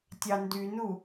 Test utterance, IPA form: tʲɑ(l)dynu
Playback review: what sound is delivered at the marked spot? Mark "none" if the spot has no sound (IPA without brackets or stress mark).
n